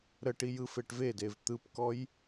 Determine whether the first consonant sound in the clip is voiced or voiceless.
voiced